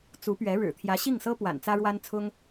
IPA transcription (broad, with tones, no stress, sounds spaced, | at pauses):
t͡s u˧˥ p ɥ ɛ˧˥ ɻ ɻ̩˨˩ t̪ʰ j ä˧˥ ɕ i˥˩ ŋ s ɤ˥ p w a̰˨˩ n t͡s ä˥ ɻ w a˥ n t͡sʰ ʊ˥ ŋ